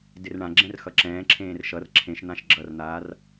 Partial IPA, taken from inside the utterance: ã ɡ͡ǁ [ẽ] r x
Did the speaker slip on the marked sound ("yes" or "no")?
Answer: yes